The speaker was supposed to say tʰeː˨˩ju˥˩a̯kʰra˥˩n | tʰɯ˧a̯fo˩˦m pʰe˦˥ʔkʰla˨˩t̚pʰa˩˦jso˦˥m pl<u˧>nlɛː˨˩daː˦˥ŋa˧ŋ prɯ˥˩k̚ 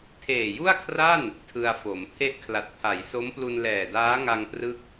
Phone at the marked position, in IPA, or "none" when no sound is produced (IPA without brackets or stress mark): u˧